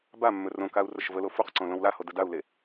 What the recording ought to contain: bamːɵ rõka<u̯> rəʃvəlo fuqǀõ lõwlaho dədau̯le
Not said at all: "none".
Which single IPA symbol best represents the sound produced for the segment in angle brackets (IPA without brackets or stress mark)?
u̯